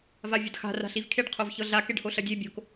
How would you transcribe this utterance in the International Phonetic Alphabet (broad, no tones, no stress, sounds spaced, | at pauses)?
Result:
v a vʲ ɐ d x a̤ r a̤ ɬ i v kʰ e ɖ qʰ o v ç ɤ ɮ a k e ɖ h o ɬ ɐ dʲ e bʲ o̤ k